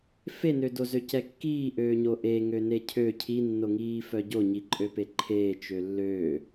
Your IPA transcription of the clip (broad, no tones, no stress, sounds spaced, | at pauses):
f e n ø d o z ø c ɛ kː iː ʔ øː ɲ o ʔ e ŋ ø n e cʰ ø cʰ i nː o ŋ iː f œ ɟ o ɲ i ǃʼ ø p e ǃʰ eː t͡ʃ ø lː øː